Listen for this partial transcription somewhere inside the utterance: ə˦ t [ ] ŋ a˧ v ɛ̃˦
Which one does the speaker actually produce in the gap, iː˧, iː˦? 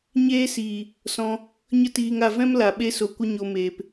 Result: iː˧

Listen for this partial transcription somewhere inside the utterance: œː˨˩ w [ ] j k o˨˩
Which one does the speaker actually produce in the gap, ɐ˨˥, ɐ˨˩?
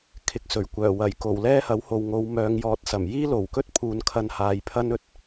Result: ɐ˨˩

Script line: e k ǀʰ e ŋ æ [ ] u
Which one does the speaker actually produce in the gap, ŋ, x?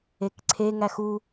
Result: x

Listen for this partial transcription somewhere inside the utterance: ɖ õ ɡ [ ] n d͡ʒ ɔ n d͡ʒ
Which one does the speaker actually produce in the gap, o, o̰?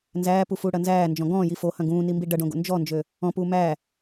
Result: o̰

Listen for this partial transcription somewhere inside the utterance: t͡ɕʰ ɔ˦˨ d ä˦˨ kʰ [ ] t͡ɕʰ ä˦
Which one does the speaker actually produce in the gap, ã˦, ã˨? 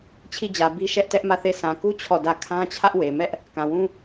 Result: ã˦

